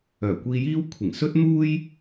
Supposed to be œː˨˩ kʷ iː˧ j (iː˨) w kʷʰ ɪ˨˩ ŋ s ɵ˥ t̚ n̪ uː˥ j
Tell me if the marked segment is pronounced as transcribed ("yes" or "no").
no